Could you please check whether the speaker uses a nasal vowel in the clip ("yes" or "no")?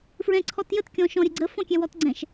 yes